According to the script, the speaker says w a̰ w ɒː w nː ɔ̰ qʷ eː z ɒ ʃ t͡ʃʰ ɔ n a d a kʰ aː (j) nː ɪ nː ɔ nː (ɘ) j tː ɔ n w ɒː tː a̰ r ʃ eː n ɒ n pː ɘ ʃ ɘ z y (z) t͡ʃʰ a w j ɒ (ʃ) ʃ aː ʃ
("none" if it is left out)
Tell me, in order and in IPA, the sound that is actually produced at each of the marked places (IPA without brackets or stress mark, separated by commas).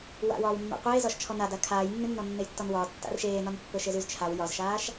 j, e, z, z